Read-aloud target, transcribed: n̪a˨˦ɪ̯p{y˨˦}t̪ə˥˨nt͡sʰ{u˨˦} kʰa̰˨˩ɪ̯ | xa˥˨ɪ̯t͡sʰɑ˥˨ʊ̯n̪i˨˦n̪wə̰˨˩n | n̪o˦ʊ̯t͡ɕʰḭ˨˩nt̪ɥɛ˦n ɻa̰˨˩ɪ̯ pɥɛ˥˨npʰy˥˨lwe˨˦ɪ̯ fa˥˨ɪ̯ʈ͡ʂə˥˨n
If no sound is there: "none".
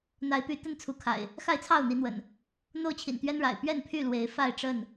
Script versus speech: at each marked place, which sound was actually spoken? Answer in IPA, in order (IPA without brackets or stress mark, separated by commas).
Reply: y˨˦, u˨˦